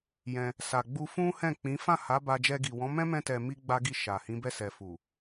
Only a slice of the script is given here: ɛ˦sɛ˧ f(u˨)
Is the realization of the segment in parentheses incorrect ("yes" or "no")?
no